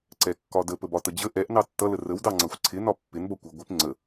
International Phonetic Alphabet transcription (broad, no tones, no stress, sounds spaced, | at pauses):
ǀ ɛ kː ɒ d ə p ə b ɒ t ə d͡ʑ ə ʔ ɛ ʔ n ɑ tː ʌ l ə r ə w d ɑ ŋ͡ǀ ʌ xʷ ǀʰ ɪ n ɒ pː ɪ n b ʌ kʷ ɪ ɡʷ ɪ p ŋ͡ǀ ə